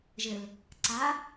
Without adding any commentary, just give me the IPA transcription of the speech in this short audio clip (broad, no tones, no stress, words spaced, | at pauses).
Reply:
ʒɘl | ǀa